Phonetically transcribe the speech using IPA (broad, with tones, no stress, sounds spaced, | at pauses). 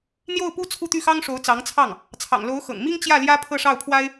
n̪ j o˥˩ ʊ̯ p u˥ t͡sʰ u˥˧ t̪ y˥˩ x ɑ˥ ŋ ʂ o˧˥ ʊ̯ t͡s ɑ˧˥ ŋ t͡sʰ ɑ˥˩ ŋ | t͡sʰ ɑ̰˨˩ ŋ l o˧˥ ʊ̯ x ɤ̰˨˩ ŋ m i˥ ŋ t͡ɕ j ä˥˩ l j ä˥ pʰ ɤ˥˧ ʂ ɑ˥˩ ʊ̯ pʰ w a˥ ɪ̯